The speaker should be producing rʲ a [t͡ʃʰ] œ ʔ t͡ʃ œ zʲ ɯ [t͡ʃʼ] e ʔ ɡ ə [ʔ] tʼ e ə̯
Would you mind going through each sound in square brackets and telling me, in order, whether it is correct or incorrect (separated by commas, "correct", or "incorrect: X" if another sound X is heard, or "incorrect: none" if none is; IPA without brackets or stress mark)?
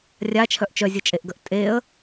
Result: correct, correct, correct